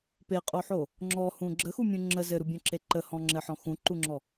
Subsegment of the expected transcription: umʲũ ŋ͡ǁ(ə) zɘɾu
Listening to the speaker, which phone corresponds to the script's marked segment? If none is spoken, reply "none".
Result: ə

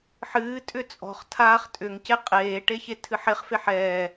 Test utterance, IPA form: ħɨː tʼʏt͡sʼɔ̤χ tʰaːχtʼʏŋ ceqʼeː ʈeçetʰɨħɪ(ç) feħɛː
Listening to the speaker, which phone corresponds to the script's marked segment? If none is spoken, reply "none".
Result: χ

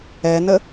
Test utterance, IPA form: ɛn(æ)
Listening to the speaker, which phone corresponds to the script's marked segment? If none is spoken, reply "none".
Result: ə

